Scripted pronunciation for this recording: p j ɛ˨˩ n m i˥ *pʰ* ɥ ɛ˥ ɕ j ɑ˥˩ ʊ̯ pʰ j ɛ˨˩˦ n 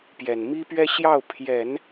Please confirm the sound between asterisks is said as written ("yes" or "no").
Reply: no